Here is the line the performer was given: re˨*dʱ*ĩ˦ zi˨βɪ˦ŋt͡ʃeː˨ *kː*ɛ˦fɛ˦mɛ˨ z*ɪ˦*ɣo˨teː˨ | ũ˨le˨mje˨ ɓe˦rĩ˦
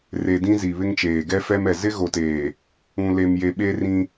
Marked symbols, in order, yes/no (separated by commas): no, no, yes